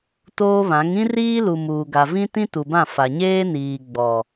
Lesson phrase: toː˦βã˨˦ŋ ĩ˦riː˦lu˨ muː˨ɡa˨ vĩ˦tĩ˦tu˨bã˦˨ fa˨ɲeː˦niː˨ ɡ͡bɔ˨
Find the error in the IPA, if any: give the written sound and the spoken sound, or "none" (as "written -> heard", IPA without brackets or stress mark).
none